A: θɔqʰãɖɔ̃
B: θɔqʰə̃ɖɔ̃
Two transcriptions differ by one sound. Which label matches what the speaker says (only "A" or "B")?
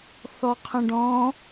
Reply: B